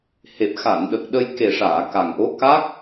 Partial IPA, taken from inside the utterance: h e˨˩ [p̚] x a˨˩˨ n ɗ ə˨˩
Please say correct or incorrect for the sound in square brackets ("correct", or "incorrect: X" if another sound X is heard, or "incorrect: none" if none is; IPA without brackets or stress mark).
correct